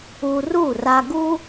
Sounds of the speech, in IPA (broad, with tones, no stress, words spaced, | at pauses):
u˧ru˥˩ra˧ɡu˥